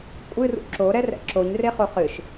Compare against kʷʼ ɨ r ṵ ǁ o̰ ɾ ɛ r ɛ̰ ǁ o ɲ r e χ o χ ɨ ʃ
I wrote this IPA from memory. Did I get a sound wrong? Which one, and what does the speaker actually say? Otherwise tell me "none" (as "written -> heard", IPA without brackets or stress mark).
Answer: o̰ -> o